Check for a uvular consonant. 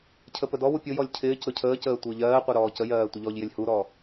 present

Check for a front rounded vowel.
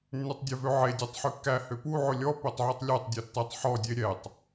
present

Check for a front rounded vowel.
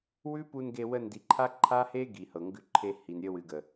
absent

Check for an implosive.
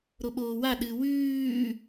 present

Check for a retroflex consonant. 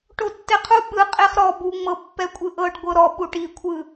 present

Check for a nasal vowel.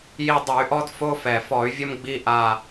absent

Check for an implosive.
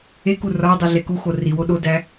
present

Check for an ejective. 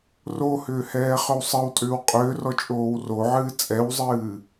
present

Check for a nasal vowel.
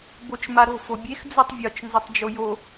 absent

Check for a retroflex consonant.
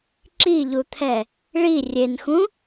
present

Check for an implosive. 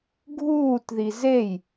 absent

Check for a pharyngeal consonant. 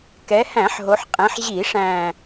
present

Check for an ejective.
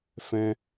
absent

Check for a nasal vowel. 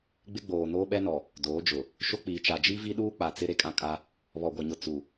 present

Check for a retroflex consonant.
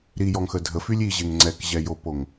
absent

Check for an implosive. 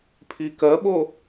present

